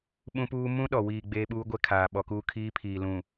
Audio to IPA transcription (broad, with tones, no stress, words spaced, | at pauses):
ɓũ˦puː˦ mũ˦ɗɔ˨wiː˨ ɡ͡beː˦ɓuː˦ɡʷɛ˦kʰaː˨ ɓɔ˨kuː˦kʰiː˦ pʰiː˨lũ˨